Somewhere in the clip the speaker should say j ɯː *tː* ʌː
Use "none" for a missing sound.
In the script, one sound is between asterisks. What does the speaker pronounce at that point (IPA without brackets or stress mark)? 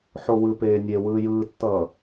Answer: tː